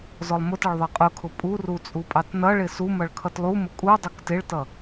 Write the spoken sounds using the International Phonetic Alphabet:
z ɔ lˠ m ʊ t ʌ ɭ ðˤ ɪ qʼ ʊ kʰ ʊ pʼ u r u t͡sʼ u pʼ ɑ t n ʌ ɭ ɪ s u m ʌ ɭ kʰ ʌ t lˠ u m ʊ kʼ u dˤ ʊ k t ɪ ɭ t ʌ

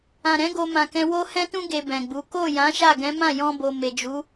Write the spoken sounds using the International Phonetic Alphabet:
ã˨ ɾ ɛ̃˨˦ ɡ o˧ m ã˨ k ɛ̃˧ w o˦ h ɛ̃˦ t ũ˦ ɡ e˧ b ɛ̃˨ ɡ͡b u˨˦ k o˦˨ j ã˨˦ ʃ a˦˨ ɡ ɛ̃˨˦ m ã˦˨ j ɔ̃˧ b o˨ m e˨ d͡ʒ u˨˦

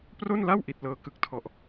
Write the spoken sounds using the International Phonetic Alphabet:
p r o˥˩ n l a˥˩ w ʔ i˨˩ t̚ l ɤː˧ k ɯ˨˩ k̚ tʰ ɔ˨˩ ʔ

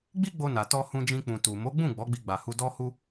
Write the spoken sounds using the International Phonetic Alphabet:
ɡ͡b i˦ ɡ͡b o˧ n a˨ t ɔ˧ h ũ˧ d͡ʒ ĩ˧ k͡p ũ˨ t u˨ m o˨˦ ɡ͡b ũ˦˨ ɡ͡b ɔ˨˦ ɡ͡b i˧ ɡ͡b a˨ h u˧ d ɔ˧ h u˧

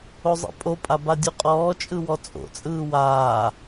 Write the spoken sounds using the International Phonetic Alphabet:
o zˤ ḛ pʼ o pʼ a b a dʲ u qʼ ɔː t͡ʃʼ ɯ w ɔ t͡sʼ o̰ t͡sʼ ɯː w aː

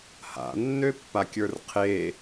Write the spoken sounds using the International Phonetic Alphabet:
h a̰ nː ø pː a kʲ ə˞ r qʰ e

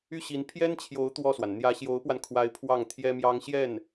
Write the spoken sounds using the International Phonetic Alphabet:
y˥˩ ɕ i˧˥ n pʰ j ɛ˥ n t͡ɕʰ j o˧˥ ʊ̯ t̪ w ɔ˥˩ s w a˩ n n̪ j ä˧˥ ɕ j o˧˥ ʊ̯ p w a˧ n kʰ w a˧˥ ɪ̯ pʰ w ɑ˥˩ ŋ t̪ʰ j ɛ˥ m j ɑ˥ ŋ ɕ j ɛ˥˩ n

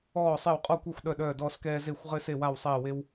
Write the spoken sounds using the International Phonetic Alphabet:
ɔː˦˨ sˤ e˦˨ w qʼ ɔ˦˨ kʷ ɛ˦˨ xʷ ɗ œ˦˨ ɗ œː˦˨ d ɔː˦ s k ɛː˦ z e˦˨ xʷ ʁ ɘ˦ s e˦˨ w a˦˨ w sˤ ɛː˦˨ w e˦ w

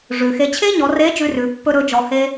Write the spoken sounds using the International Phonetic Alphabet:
ʐ ʉ˩ x e˧ t͡ɕʰ e˥ ɲ ɔ˩˧ r e˧˥ d͡ʒ ʉ˥ r ʉ˩˧ pː ɵ˥ ɾ ɵ˧˥ d͡ʒ ɔ˧ h e˥

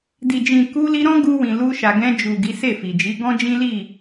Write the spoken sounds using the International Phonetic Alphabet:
d i˨ d͡ʒ ĩ˨ k u˧ l i˧ ɾ ɔ̃˦ ɡ u˧ w ĩ˨ l u˧ ʃ a˨ ɡ ɛ̃˧ d͡ʒ u˨ ɡ i˨˦ s e˦˨ f i˨ d͡ʒ i˨˦ ɡ ɔ̃˦ d͡ʒ ĩ˦ l i˦˨

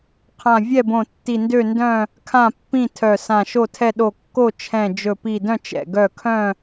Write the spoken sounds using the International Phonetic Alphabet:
qʰ ã˧˩ vʲ ɛ˥˨ b õ˧˩ tː i˧˩ n d ø˥˨ n d œ̃˥˨ | kʰ ã˥˨ pː ĩ˥˨ tʰ œ˧˩ s ã˧˩ ʃ o˥˨ tʰ ɛ˥˨ ɗ o˧˩ kː o˥˨ t͡ʃʰ ɛ̃˧˩ d͡ʒ ɵ˧˩ p i˧˩ d œ̃˥˨ t͡ʃ ɛ̰˧˩ ɡ œ˥˨ kʰ œ̃˥˨

